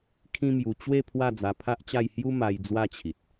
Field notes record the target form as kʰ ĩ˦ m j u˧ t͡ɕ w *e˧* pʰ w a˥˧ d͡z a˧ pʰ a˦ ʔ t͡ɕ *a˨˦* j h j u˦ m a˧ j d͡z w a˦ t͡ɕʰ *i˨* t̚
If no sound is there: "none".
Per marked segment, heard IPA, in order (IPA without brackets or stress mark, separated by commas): e˥˧, a˥˧, i˨